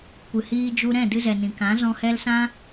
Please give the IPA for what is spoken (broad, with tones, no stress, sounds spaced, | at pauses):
kʷ ɨ˨ h iː˧ d͡ʒ u˧ ɾ ɛ̃˦˨ d ɨ˧ z ɛ˨ n ĩ˨ k ã˨˦ z ɔ̃˧ h ɛ˧ l s ã˦